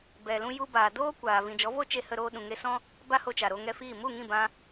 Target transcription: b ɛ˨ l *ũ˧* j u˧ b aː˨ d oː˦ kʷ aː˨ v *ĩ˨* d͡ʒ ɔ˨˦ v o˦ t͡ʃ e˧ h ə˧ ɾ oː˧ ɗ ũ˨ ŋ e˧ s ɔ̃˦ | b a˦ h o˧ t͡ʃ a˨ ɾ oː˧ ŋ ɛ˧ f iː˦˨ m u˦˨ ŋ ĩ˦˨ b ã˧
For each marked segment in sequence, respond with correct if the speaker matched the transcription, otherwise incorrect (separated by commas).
correct, correct